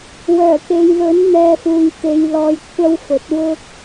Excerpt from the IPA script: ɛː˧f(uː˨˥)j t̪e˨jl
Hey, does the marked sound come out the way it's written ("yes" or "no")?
no